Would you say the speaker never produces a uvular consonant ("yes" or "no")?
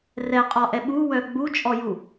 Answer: no